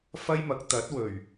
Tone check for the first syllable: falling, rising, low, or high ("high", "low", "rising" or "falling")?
high